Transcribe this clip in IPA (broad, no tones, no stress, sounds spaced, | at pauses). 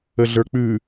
ə ɮ ə˞ k͡p ʉ